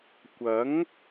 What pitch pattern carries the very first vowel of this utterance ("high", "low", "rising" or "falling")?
rising